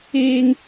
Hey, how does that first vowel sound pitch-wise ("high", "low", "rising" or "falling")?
high